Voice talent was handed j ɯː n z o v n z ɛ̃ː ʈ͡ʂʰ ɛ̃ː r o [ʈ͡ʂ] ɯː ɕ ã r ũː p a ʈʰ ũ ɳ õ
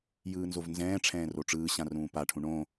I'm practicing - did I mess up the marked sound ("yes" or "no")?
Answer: no